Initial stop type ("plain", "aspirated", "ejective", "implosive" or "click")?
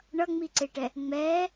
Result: click